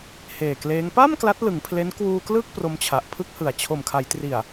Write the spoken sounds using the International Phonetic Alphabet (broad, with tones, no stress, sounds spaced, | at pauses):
h eː˨˩ k l eː˦˥ ŋ p a˥˩ m k l a˦˥ t̚ l ɯ˩˦ ŋ pʰ l e˦˥ n k w uː˧ k l ɯː˥˩ k̚ p r o˧ m t͡ɕʰ a˨˩ ʔ pʰ ɯ˥˩ k̚ h ɯ˨˩ a̯ t͡ɕʰ o˨˩ m kʰ a˩˦ j t r i˨˩ a̯